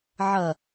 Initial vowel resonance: oral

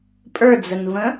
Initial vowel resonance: oral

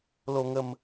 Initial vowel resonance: oral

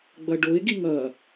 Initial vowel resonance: oral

